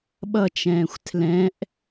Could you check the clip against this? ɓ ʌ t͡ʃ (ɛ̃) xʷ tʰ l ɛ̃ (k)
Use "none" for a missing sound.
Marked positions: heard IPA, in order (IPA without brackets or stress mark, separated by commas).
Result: ɛ̃ː, ʔ